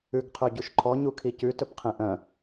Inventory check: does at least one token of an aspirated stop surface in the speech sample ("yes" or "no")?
yes